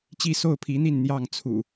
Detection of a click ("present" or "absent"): absent